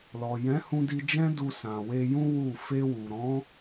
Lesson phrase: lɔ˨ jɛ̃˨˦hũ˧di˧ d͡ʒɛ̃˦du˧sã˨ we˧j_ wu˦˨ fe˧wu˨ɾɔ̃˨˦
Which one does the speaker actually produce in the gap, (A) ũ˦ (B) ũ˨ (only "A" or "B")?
A